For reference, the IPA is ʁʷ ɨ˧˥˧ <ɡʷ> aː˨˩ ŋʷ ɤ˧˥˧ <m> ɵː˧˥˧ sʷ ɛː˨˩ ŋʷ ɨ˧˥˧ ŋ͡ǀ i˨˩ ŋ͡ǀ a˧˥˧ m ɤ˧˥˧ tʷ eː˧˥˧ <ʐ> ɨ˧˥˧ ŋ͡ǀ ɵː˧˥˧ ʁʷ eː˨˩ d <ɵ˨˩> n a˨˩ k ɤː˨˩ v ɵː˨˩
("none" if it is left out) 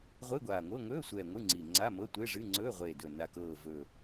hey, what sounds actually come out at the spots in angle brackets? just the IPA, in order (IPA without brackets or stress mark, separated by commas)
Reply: ɡʷ, ŋ, ʐ, ɵ˨˩